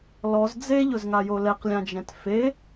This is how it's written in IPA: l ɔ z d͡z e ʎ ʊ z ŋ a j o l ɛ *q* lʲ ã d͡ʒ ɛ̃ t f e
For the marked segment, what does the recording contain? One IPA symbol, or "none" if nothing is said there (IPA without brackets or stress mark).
q